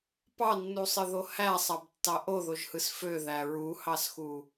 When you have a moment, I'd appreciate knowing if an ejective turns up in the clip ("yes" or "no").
no